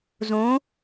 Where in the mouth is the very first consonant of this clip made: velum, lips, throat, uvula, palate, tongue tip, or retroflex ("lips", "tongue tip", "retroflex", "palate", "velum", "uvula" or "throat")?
tongue tip